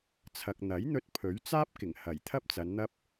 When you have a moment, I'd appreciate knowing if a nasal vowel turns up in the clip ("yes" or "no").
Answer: no